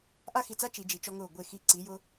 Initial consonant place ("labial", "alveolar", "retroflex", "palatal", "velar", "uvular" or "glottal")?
glottal